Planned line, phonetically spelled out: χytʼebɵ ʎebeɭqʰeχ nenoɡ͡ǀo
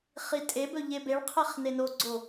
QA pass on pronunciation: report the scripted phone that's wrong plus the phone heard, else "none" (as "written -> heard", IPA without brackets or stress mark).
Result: y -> i